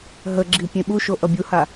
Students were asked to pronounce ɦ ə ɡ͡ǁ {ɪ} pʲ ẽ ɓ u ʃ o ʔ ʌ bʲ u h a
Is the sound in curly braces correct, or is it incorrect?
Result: incorrect